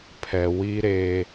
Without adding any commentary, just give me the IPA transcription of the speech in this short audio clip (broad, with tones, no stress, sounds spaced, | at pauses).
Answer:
pʰ ɛ˨ w i˦ ɾ e˦